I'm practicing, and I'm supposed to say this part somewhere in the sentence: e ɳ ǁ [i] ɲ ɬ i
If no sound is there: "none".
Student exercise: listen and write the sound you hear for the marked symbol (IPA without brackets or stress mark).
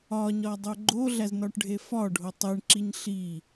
i